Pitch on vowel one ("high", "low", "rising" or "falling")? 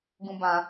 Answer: high